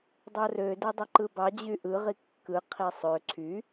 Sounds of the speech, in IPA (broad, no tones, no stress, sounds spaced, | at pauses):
dˤ o r ø d e dˤ y ǃ ɯ b ɑ d͡ʑ y ʔ ɯ ʁ i kː ɯ qʰ i sˤ ø ǀʰ y